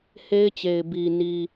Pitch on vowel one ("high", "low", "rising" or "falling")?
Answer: high